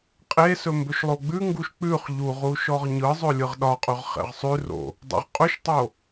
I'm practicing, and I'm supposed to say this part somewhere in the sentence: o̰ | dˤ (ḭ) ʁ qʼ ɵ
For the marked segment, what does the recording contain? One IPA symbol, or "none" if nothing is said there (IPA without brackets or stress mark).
ḛ